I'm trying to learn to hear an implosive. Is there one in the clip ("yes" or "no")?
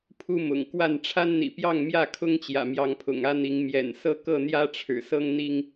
no